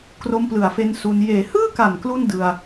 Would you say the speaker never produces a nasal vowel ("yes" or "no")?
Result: yes